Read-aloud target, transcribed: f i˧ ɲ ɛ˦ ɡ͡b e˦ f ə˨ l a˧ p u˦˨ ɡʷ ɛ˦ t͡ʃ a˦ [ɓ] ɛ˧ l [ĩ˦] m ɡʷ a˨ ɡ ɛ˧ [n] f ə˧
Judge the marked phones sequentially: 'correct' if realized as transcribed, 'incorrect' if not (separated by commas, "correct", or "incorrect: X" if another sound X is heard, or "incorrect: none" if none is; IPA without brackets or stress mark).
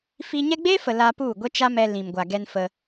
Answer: incorrect: m, incorrect: ĩ˨, correct